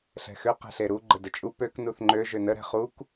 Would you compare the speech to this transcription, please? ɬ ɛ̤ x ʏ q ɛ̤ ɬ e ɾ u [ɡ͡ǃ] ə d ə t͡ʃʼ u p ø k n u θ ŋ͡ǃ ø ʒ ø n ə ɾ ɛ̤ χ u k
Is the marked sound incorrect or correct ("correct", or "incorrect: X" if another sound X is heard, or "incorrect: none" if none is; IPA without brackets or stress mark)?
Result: correct